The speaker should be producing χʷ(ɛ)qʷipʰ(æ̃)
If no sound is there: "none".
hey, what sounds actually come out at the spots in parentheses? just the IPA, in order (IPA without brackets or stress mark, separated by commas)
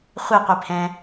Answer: e, ɛ̃